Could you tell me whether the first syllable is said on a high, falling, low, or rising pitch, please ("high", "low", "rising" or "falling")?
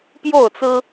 falling